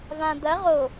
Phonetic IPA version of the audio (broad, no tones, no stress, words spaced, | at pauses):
vãd̪ɐ ʁo